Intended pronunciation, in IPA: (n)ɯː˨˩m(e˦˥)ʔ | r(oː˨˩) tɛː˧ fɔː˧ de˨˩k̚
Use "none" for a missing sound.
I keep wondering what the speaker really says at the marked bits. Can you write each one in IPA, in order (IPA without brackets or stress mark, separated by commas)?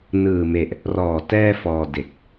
n, e˨˩, ɔː˨˩